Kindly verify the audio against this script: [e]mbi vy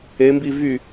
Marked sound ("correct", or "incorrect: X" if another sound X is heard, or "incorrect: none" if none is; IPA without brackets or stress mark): correct